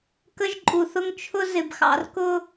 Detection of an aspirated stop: present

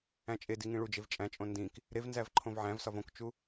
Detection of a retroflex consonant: present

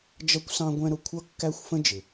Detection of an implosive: absent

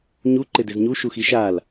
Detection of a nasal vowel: absent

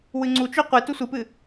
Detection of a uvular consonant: present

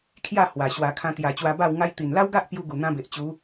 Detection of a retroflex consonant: absent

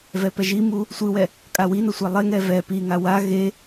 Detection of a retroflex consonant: absent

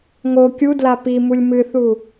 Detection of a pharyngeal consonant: absent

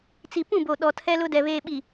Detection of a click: absent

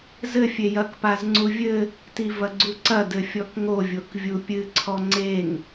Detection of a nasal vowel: absent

